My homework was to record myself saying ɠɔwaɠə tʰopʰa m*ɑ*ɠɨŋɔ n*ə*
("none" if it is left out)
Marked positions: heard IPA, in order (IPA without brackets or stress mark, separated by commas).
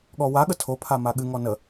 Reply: a, ə